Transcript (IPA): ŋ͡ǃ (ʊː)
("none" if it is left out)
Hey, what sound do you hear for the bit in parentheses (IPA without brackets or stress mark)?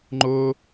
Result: ʊː